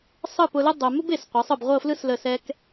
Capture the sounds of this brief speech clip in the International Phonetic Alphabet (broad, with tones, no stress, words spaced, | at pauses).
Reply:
sˤɯ˥˧pʊ˧lə˥ dˤʊ˧ mʊ˥be˧˩sqʷɛ˩˧sˤɯ˧˩b ʁʷɤ˥˧flɯ˥slə˧˩ sɛ˧k